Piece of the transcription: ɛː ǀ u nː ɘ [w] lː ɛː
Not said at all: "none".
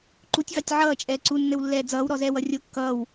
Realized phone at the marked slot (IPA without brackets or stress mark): w